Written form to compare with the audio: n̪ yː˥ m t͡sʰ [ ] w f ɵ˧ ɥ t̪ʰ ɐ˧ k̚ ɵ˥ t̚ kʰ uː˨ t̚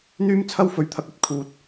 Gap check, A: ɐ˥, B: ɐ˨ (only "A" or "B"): A